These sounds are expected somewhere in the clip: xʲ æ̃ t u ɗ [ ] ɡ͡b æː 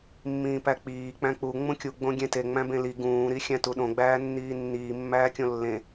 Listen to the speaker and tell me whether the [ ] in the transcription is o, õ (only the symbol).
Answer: õ